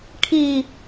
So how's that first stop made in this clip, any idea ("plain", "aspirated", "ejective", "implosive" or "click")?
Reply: aspirated